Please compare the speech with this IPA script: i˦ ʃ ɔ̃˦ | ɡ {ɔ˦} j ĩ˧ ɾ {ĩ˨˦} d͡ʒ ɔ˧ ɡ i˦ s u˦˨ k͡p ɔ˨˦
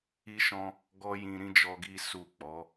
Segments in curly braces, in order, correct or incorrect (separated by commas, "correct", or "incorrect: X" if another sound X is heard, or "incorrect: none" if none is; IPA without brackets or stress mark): correct, incorrect: ĩ˦